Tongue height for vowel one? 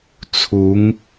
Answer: high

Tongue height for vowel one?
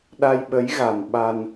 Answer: low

